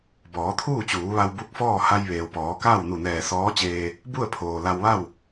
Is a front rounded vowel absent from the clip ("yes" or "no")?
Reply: yes